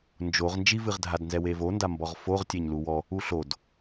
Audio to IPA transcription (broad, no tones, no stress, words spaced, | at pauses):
nd͡ʒoʁ nd͡ʒivɨʁdʱadnzɛ wevonda mbɔʁfoʁtʲeɲ luwɔ | uɬod